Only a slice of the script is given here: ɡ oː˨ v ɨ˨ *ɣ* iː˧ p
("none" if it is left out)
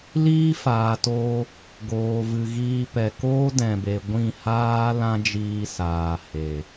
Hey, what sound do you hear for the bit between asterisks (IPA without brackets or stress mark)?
ɣ